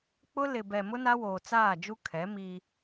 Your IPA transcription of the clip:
k͡pʊ˦lɪ˨ bɛ˨mʊ˦ na˦ woː˨t͡saː˦˨d͡ʒu˦ kʰɛ˨˦miː˦

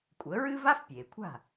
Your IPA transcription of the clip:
kʷʼə˩˥ɹɨ˥ va˥fpʲeː˩kʷʰa̤˥˩

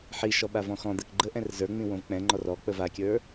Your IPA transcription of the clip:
ħiʃɔ ɓavɔ̃xɔ̃d̪ɛk ɡ͡ǃə ʔɛ̃rzə˞ŋ͡mĩ wõvk͡pɛ̃ŋ͡ǃɔr ɔk͡pəv akʲə˞

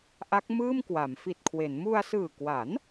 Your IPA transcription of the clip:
ʔa˦˥k̚mɯː˥˩mkwa˩˦m fi˨˩t̚kʰwe˩˦n mu˧a̯sɯː˨˩kwa˩˦n

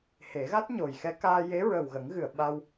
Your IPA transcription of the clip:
he˨˩˦ɣa˦˥t̚ɲo˨˩j xɛ˧˥kaː˧ je˧˥ɹə˨˩wɣə˨˩˦ŋ ɣɨ˨˩˨ə̯ ɓa˧w

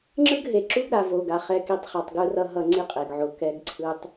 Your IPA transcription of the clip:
ŋ͡ǁɯ˦ɡɦe˨ ǁu˦ɡɾa˨vo˨ɡa˨ χɛ˨ki˨tˤχɛ˨tˤ ɡɯ˨rʌ˨ ɦʌ˦ŋ͡ǀi˦qʼe˨ɡʕo˨ kɛ˨ɡǀʰɯ˨tˤ

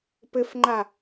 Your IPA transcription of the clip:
pɘfŋ͡ǃa

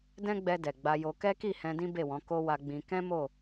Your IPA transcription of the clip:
dɛ̃˦ɡ͡bɛ˧ dɛ˨ɡ͡ba˧jo˧ kɛ˦ki˦˨ hɛ̃˧dĩ˦ be˦˨wɔ̃˨˦ ko˦wa˧ɡ͡bĩ˧ kɛ̃˦ mo˦˨

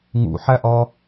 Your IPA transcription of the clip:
ŋṵħæʔɒ

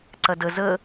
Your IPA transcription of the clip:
ǀɐdə zə

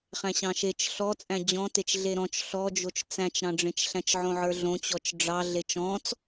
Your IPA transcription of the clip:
χæ̃ɕɑ̃ʃet͡ʃ ɬɔ t͡sʼæ̃d͡ʑɔ̃tet͡ʃ ɮeɾɔ̃t͡ʃ ɬɔd͡ʒot͡ʃ t͡sæ̃t͡ʃɾɑ̃ɖ͡ʐẽt͡ʃ ɬæ̃t͡ʃʕõʕə˞ɮõ t͡ɕɔt͡ʃɖ͡ʐɑ ɮet͡ʃɔ̃t͡s

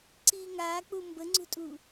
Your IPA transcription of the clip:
ǀiːŋaːk͡pu mbəŋ͡ǀṳtʼuː

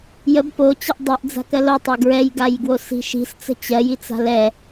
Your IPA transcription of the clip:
jəb pot͡ɕəʔ dˤɜʔd͡za̤kɜl otˤa ɡɹɛjɡajɡwosi̤ ʃi̤st͡sə̤ t͡ɕɜjit͡sa̤l ɛ

